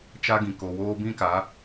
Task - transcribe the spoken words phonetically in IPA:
t͡ʃa˦ɡĩ˨ko˨woː˦ bĩ˦ka˨˦

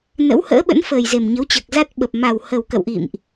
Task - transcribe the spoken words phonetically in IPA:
nə̰˧˥whə̰ː˧˥ɓə̰˧˥n fəː˨˩j ze˨˩mɲə˨˦wt͡ɕəː˨˩k̚ za˦˥t̚ɓə˨˩p̚ ma˨˩whə˨˩w kə̰˧˨wʔḭ˧˨mʔ

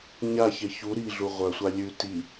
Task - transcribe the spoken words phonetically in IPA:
ɲaçe çu ɾiɮu ʁʷœsʷa lʲʉ ti

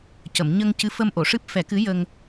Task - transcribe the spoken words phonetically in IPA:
cə˨˩˨mɲə˧ŋ cɨ˧˥fə˧mʔo˨˩˨ʂɨ˦˥p̚ fɛ˨˩˦kɨ˧˥jə˧ŋ

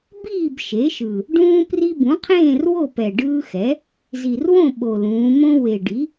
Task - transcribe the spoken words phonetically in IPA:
biː˥˨b ʃe˩˥ʃɯ˨˩ | ɖũː˦pri˦bũ˩˥qʰẽː˥˨r wo˥˨pɛ˨˩ɖɯː˦xɛ˩˥ | zi˨˩rwõ˥˨ ɓo˨˩lũː˩˧ mõ˦ we˨˩ɖi˩˥

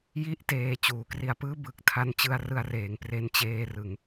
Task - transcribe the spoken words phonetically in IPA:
ji˥˩ʔteː˧ t͡ɕuː˩˦kri˧a̯pɯː˥˩ bɯ˨˩k̚tʰa˧nt͡ɕɯ˧a̯ rɯ˧a̯reː˩˦ŋ pre˧nt͡ɕeː˧rɯ˩˦ŋ

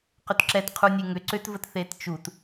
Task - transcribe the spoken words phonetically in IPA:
qʏtǁɛtqʰu nʲeŋʏ ǀʏt vətθett͡ʃut

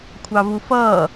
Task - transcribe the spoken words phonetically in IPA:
kʷʰɑvufʌː

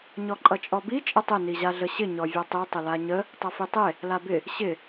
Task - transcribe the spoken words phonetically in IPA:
ɲɔǃʼʌt͡ʃʼɔbi t͡ʃʼətˤɪ niʑaɮəɕɪ ɲɔvʲɔtˤi tˤɪlaɲə | tˤʌfitˤe | labɪ | ɕɪ

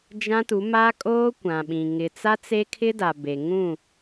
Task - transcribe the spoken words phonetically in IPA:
d͡ʒã˦tu˨˦ ma˦kʼoː˦kʷã˨ɓĩ˨ ŋɪ˨t͡sa˦ t͡se˦kʰɪ˦da˨ be˨ŋũ˦˨

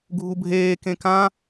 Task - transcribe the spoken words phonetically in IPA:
ɡʱubʱeː kẽkã

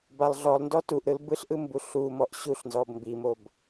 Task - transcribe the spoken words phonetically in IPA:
balˠɮɔlˠndɔ tuʔɾɯl bɯɬʔɯm buɬumɔʔ ɕuɬnzɔb mbimob

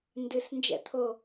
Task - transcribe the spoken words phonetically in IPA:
ndɨs nd͡ʒɛ̰t̪ʰo

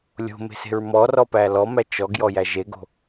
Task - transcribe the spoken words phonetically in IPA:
lʲo̤me̤se̤ɹ mɔrɔpæ lɔmæ t͡ʃɔɡjɔjæ ʒeɡo̤

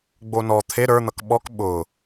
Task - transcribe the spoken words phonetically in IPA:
ɡ͡bonɔ t̪ʰe ɾə˞n̪ʌk ɓɔk ɓʊ

